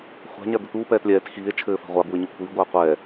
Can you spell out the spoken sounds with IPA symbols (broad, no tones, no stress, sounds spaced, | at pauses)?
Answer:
χʷ a̤ ɲ a d̪ ɘ t̪ uː p ɛː t lʲ ɛː t x iː e̯ t͡ʃʰ ɘː f a̤ ʁʷ a b uː e̯ ɲ o kʷʰ iː ɡʷ aː qʷ ɛː